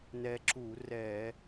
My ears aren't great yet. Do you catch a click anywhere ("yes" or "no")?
yes